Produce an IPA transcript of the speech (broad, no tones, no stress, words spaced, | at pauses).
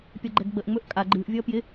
pʲʌɡ͡ǃɛɡɡ͡bəʔ ŋ͡mɵʔkʼa ɡ͡ǃɨːʔ vʲʌːpjɪ